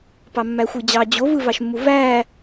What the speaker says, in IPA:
p ɑ mː æ xʷ ɯ d͡ʑ ɑ d͡ʑ o v ɯ v ɑ ʃ mː u v æ

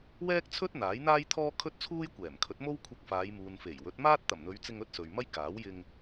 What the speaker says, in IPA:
w ɛː˥ k̚ t͡sʰ ɵ˥ t̚ n̪ aː˨˥ j n̪ aː˥ j t̪ʰ ɔː˥ kʰ ɵ˥ t̚ t͡sʰ uː˥ j kʷ ɛː˨˩ m kʰ ɵ˨˥ t̚ m o˥ w kʷʰ ɐ˧ k̚ f aː˨˧ j m uː˨ n f e˨˩ j w ɵ˨˥ t̚ m aː˥ t̚ t̪ ɐ˨˩ m n̪ ɵ˨˧ ɥ t͡s ɪ˧ ŋ ɵ˥ t̚ s ɵ˨ ɥ m ɐ˥ j k aː˨˥ w j ɪ˧ ŋ

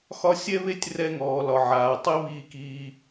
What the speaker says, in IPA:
x ɒ˦ sʲ ɛ˦ β e˦ tʲ r ɛ˦˨ ŋ ɔː˨ l ɒ˨ ʕ aː˨ tˤ i˦ β iː˧ k iː˧

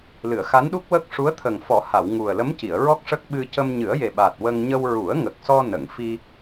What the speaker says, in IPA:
l ɨ˨˩˨ ə̯ x a˧˥ n ɗ u˦˥ k̚ w ə˦˥ k̚ ʂ u˧˥ ə̯ t̪ʰ ə˨˩ ŋ f ɔ˨˩˦ h a˨˩˨ w ŋ u˨˩ ə̯ l ə˧˥ m c i˨˩˨ ə̯ ɹ ɔ˦˥ k̚ ʂ ə˦˥ k̚ ɓ ɨ˧ c ə˧ m ɲ ɨ˨˩˦ ə̯ j e˨˩ ɓ a˨˩ t̚ w ə˧ ŋ ɲ ə˧ w ɹ u˨˩˦ ə̯ ŋ ə˨˩ k̚ s ɔ˧ n ə˨˩˨ ŋ f i˧

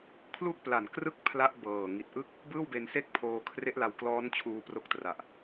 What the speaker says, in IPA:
kʰ l u˥˩ k̚ p l a˨˩ n k r ɯ˥˩ k̚ pʰ l a˥˩ ʔ b ɤː˨˩ ŋ i˨˩ t̚ ʔ ɯ˥˩ k̚ | b ɯː˥˩ w b e˧ n s e˥˩ k̚ pʰ oː˧ kʰ r e˦˥ ʔ l a˧ w k l ɔː˦˥ n t͡ɕʰ uː˧ p r o˦˥ k̚ t r a˨˩ ʔ

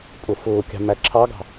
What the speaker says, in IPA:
pʼ ʊ f ʊː kʲ ɑ̤ m æ ǁʰ ɑ ɡ ɑ̤

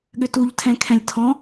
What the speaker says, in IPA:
ɠ ʏ t u ʎ tʰ ɛ̃ kʰ ɛ̃ lʲ tʰ ɔ̃

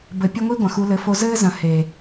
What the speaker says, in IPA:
b ɘ˧ pʲ ɐ˦ ŋʷ i˦ ɡʷ ɐ̃˨ x u˧ l ɘ˨˦ f o˧ z ɘː˦ z ɐ̃˨ h e˨

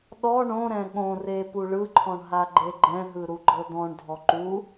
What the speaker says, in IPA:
ɗ ɔ ɳ õ ɾ ɛ̃ ɠ õ r e p u ɭ ɯ ǃʰ ɔ̃ ɳ ɦ a ɡ͡ǃ e ɡ͡ǃ ɛ̃ ɦ ɯ ɾ u ɡ͡ǃ ɤ d ɔ̃ ɳ dʱ ɔ ǃ u

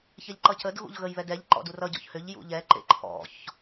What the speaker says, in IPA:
ç ɛ ʎ ǃ ʌ c ə d ɣ ṵ ʎ ɣ ə j β ɛ d ɛ ʎ ǃ ɔ̰ d u r ʌ ɟ ɔ̰ ç h ʏ ʎ j ṵ ʎ ɛ ǃ ḛ ǃʰ ɔ̰ ç

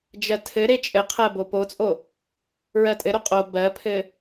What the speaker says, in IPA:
d͡ʒ ɜ tʰ ɘ ɾ e t͡ʃʼ ɘ qʰ ɜ b o p o t͡sʼ o | ɹ ɜ tʼ ɘ ɾ o qʼ o b ɜ pʰ ɘ

